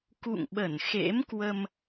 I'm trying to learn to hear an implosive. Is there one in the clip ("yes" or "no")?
yes